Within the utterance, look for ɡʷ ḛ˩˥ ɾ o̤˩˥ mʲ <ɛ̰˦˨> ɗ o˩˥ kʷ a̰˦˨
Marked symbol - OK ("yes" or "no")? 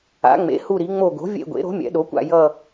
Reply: no